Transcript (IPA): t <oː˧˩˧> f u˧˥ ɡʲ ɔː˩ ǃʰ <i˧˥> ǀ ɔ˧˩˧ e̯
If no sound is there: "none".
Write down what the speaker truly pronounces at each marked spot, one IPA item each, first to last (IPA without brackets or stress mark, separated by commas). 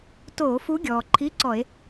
oː˧˩˧, i˧˥˧